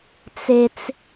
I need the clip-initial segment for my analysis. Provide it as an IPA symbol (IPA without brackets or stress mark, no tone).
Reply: t͡s